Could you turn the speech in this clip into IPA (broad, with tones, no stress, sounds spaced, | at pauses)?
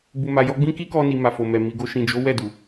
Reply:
b u˨ m a˨ j ɔ˧ ɡ͡b ĩ˦ k i˦ k ɔ˧ n i˨ m a˨ f o˨ m ɛ˨ m i˨ ɡ o˧ ʃ ĩ˨ d͡ʒ o˨˦ w ɛ˦˨ d u˨